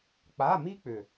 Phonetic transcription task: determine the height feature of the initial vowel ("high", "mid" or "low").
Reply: low